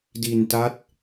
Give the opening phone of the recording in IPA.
d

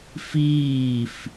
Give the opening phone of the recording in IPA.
f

